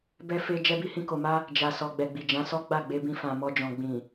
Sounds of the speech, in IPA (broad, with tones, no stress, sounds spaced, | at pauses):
b ɛ˧ f e˧ d͡ʒ ɛ˧ b i˧ h ĩ˧ k o˨ m a˧ | d͡ʒ a˨ s ɔ˨ ɡ͡b ɛ˨ ɡ͡b i˨ d͡ʒ ã˨˦ s ɔ˦ ɡ͡b a˦˨ ɡ͡b e˧ b ĩ˧ f ã˨ m ɔ˧ d͡ʒ ɔ̃˨ ɡ͡b ĩ˨